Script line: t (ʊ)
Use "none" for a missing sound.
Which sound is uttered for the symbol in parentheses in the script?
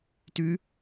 ʉ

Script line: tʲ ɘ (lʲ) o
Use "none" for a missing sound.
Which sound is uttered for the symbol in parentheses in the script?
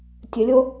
lʲ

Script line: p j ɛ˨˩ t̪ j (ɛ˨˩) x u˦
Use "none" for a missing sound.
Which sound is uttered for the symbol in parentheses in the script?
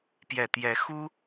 ɛ˨˦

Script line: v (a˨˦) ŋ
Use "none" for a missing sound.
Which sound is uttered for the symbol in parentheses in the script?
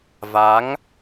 a˨˦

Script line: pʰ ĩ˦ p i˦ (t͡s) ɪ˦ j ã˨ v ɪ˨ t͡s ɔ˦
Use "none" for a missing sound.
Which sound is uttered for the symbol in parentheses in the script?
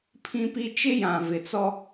t͡ʃ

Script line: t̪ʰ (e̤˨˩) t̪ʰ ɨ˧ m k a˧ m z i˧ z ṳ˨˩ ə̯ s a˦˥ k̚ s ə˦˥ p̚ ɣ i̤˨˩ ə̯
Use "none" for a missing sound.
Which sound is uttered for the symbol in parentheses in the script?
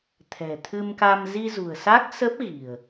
ɛ̤˨˩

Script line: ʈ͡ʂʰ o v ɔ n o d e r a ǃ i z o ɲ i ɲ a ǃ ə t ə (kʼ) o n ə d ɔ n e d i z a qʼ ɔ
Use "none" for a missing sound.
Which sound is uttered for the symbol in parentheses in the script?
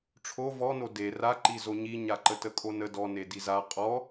kʼ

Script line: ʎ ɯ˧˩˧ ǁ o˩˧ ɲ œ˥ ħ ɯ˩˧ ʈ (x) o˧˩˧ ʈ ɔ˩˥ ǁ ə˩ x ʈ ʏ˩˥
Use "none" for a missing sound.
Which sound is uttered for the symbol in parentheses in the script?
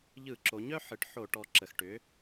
ħ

